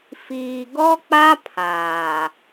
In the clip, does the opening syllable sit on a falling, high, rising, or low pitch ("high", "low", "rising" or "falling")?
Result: low